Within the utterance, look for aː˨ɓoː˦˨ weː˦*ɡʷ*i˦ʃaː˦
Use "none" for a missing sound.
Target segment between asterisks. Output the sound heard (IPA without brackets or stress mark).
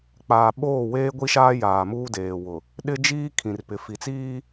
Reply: ɡʷ